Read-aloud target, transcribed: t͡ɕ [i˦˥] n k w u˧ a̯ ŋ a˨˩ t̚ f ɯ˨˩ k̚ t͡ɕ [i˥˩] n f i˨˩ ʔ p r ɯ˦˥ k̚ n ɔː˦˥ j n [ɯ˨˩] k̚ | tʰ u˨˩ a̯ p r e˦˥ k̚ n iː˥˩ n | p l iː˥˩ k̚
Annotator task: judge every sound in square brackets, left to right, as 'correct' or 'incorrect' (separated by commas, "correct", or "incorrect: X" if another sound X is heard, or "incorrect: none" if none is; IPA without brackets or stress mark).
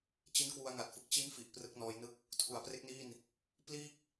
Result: correct, incorrect: i˦˥, incorrect: ɯ˥˩